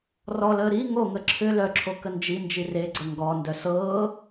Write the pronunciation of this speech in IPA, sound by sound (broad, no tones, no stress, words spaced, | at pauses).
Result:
rɔləː ɾi ŋoŋə ǁʰʏ lœǁʰo kənd͡ʒind͡ʒi reɡ͡ǀə ŋɡɔndœ sɤː